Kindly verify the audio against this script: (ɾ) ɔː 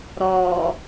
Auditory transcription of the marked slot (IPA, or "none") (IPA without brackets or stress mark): ɾ